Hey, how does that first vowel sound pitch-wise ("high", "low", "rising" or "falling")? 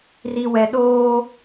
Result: low